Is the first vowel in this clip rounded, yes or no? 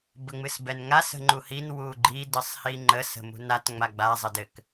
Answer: no